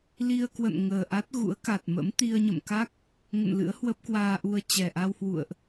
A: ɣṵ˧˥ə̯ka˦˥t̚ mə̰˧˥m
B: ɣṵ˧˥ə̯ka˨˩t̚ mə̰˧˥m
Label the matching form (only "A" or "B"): B